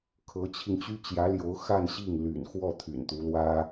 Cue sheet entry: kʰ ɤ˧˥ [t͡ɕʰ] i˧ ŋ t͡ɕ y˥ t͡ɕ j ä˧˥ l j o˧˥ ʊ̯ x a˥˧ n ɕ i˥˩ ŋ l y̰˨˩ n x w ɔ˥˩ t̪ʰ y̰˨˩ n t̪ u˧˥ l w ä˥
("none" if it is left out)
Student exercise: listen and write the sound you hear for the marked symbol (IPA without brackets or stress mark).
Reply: t͡ɕʰ